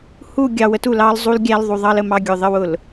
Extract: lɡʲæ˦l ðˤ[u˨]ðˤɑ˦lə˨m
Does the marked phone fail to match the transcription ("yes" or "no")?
no